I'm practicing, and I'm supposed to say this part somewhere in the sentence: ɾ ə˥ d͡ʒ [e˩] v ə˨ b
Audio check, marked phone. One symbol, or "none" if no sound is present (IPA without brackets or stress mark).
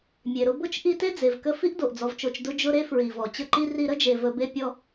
e˨